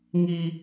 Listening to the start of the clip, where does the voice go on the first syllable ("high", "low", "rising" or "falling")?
high